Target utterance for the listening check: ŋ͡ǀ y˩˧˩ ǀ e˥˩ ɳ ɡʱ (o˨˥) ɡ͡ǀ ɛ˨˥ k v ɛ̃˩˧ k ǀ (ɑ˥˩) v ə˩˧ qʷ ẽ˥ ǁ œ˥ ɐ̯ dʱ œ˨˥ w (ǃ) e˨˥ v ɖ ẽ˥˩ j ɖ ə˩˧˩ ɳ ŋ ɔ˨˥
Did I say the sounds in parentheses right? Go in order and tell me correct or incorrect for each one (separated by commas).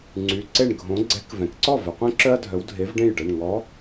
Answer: incorrect, incorrect, incorrect